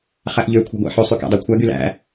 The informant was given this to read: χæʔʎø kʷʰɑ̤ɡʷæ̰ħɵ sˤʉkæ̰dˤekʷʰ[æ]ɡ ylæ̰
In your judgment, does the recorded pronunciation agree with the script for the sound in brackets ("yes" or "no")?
yes